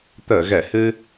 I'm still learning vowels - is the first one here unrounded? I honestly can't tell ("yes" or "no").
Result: yes